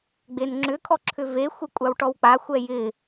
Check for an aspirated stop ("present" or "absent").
present